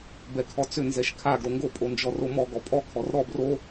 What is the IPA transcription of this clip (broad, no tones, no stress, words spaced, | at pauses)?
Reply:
bɛkʰɔt͡sʏ nzɛʃkʰaɡ ɾoŋɡo pʼond͡ʒɔromɔ ɡɔpʼɔ kʰɔrɾɔ bro